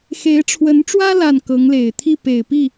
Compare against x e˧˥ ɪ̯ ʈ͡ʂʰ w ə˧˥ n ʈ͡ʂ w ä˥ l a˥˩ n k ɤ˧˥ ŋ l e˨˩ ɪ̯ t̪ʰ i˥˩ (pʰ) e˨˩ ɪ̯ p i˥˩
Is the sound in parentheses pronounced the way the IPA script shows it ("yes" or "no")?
no